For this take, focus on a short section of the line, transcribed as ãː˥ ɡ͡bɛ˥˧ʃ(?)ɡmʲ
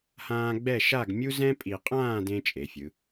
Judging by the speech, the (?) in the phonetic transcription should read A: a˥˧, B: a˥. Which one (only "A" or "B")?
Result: A